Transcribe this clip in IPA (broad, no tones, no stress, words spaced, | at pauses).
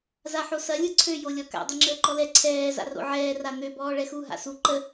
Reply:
zaħosɐ lʲɯǀʰø jolʲɔka̰ dˤyŋ͡ǁəːǃɔlɛ ǀʰɛː za̰ro̰ʕɛː ran̪ø bɔːɭɛxu ɦa̰su ǃə